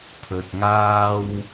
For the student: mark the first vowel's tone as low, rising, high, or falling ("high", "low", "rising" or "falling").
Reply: low